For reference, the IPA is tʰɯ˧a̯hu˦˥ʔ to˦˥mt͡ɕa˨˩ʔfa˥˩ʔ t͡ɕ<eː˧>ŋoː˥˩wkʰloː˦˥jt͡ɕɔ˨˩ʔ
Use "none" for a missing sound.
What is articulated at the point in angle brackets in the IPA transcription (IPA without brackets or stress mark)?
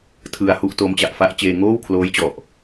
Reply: eː˧